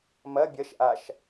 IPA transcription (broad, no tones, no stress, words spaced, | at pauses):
mɐ bʲɐʃ ʔaʃ